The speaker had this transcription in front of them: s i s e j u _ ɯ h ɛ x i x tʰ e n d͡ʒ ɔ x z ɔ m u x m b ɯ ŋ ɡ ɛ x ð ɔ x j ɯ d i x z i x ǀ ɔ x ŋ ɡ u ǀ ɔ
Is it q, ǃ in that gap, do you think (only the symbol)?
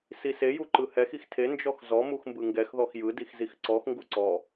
ǃ